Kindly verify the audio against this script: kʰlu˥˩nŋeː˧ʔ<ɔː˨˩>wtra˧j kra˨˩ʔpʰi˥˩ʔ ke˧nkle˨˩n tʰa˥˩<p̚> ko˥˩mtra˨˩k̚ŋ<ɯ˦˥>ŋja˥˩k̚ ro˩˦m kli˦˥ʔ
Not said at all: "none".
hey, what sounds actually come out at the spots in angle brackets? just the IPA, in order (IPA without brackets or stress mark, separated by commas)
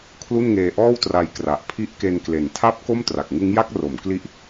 ɔː˥˩, p̚, ɯ˦˥